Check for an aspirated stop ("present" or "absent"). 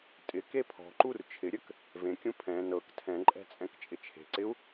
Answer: present